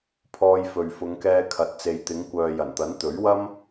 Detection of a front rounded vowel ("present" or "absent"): present